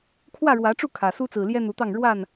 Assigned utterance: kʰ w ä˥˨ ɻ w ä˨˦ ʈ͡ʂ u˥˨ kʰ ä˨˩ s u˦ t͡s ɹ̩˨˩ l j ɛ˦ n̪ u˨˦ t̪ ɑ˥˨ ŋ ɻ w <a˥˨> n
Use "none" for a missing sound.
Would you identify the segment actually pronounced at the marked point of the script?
a˥˨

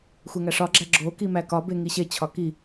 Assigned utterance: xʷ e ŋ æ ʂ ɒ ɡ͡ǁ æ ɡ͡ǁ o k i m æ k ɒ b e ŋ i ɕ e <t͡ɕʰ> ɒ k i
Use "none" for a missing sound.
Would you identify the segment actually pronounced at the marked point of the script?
t͡ɕʰ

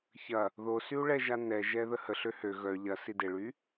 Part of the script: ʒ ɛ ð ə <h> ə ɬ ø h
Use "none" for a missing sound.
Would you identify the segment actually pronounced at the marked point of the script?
h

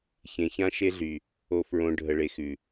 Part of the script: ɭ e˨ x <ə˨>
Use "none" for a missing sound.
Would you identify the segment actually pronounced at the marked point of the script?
ʉ˨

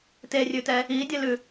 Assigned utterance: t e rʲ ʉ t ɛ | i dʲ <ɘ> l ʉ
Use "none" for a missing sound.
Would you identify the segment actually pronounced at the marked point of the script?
ɘ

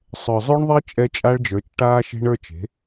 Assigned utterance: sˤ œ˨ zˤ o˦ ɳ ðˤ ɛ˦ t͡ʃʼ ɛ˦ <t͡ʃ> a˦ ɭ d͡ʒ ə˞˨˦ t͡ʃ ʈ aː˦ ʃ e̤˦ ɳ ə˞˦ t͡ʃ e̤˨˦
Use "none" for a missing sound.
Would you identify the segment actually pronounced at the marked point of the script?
t͡ʃʼ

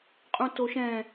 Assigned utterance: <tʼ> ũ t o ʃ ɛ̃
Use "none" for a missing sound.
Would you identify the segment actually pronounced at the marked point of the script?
qʼ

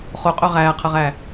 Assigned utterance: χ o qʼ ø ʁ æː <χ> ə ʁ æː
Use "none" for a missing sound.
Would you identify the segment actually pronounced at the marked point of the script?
qʰ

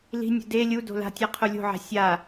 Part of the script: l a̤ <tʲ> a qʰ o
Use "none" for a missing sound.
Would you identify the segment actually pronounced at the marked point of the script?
tʲ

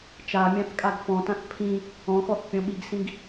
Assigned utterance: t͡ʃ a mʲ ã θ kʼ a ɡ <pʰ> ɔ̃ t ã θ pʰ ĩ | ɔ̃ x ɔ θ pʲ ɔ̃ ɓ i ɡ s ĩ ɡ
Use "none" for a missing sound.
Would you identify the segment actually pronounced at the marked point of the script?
f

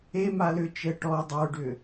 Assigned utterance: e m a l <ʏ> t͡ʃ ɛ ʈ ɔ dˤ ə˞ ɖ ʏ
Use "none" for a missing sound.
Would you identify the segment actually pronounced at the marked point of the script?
ʏ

